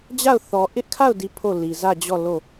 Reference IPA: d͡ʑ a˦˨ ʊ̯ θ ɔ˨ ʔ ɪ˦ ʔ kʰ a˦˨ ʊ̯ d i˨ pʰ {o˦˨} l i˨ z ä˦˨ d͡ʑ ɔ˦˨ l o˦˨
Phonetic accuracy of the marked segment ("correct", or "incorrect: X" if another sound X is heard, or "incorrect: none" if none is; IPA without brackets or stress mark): correct